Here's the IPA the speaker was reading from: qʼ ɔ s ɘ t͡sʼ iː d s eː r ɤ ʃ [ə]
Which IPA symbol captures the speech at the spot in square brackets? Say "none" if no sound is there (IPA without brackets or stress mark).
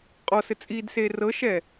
ɛ